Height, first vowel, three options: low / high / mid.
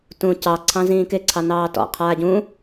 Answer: high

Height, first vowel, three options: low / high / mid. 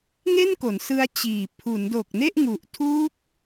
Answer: mid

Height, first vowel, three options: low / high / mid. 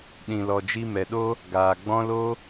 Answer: high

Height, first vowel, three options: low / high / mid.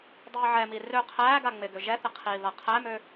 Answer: high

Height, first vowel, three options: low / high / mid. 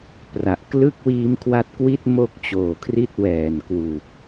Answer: low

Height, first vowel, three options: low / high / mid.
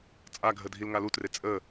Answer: low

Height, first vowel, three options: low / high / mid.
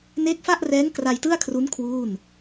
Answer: mid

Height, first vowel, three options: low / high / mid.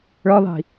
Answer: mid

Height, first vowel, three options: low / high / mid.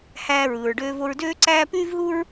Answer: low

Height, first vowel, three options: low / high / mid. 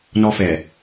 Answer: mid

